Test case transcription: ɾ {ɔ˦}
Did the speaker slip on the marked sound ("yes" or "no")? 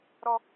no